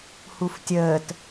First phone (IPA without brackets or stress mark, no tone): h